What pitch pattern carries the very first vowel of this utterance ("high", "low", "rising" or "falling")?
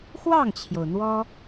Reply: falling